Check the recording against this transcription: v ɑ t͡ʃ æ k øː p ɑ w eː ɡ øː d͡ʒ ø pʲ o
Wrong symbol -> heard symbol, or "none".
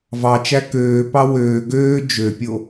eː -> øː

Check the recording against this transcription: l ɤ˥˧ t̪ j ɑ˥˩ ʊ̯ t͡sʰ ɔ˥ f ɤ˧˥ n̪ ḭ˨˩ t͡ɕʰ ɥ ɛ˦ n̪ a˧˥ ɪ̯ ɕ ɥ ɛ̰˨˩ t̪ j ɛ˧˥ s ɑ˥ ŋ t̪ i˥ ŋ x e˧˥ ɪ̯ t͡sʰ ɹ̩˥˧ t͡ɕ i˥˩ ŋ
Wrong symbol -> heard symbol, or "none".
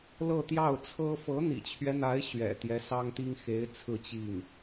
ɔ˥ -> ɤ˥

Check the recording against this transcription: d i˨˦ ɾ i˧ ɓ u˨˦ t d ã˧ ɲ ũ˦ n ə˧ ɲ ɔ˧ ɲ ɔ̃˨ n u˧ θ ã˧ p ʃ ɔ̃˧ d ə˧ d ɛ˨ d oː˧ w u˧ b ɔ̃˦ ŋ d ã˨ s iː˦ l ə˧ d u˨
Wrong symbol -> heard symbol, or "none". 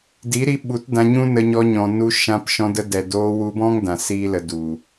θ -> ʃ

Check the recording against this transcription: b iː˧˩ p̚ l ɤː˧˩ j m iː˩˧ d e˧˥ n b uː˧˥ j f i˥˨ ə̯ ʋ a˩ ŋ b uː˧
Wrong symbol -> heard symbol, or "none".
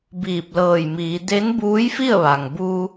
none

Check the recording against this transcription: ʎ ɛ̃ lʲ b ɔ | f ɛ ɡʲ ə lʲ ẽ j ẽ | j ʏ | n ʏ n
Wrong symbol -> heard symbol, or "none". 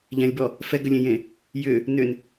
ɡʲ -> ɡ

